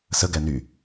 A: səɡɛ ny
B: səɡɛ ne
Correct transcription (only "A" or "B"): A